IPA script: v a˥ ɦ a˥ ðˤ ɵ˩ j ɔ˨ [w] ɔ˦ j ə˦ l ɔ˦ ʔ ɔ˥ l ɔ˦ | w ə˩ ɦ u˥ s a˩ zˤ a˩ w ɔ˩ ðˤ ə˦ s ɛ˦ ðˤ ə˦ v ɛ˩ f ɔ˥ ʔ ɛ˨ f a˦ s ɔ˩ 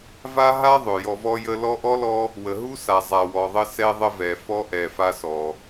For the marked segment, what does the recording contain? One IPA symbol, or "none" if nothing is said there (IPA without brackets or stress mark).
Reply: v